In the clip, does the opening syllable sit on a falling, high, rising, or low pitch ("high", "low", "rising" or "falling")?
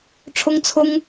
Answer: high